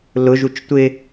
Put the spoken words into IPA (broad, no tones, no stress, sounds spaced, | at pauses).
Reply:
l ʊ ʒ u t͡ʃ tʷ ɪ